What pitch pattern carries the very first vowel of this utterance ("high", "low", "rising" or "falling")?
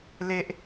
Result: high